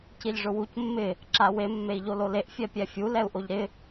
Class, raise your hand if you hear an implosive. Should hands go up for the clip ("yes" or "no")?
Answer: no